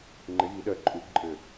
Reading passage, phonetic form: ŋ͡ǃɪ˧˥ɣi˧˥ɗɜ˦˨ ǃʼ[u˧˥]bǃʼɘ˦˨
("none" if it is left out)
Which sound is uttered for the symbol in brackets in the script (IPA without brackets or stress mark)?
u˧˥